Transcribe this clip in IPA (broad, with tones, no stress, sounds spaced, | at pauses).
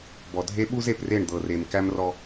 b ɔ˨ dʱ e˦ ɓ u˦ z e˨ p r e˦˨ ɳ d̪ ɤ˨ r e˨ m k æ˦ m r ɔ˦